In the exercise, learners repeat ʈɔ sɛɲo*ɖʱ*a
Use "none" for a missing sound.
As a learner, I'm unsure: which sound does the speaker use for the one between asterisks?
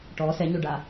ɖ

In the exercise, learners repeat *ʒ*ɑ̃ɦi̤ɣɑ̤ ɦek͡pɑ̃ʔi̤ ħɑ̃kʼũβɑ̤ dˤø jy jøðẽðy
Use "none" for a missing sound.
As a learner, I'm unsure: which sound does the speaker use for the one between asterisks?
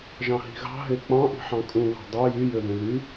ʒ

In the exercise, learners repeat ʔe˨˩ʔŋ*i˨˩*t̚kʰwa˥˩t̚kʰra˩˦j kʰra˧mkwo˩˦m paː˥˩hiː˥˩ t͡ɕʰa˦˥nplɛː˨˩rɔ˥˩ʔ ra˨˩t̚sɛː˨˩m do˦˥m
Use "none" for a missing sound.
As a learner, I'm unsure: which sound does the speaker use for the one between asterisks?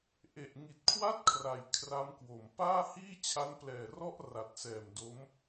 i˨˩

